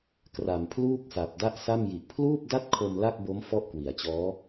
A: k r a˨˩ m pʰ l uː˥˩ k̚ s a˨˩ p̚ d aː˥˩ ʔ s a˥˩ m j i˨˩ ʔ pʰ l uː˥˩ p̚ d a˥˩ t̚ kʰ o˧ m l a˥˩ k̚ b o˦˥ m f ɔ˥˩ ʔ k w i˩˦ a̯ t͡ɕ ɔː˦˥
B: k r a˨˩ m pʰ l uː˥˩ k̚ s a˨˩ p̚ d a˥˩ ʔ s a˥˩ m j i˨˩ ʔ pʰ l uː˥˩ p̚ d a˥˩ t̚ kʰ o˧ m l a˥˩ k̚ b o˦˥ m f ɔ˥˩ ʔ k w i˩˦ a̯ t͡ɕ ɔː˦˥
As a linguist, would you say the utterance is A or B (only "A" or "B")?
B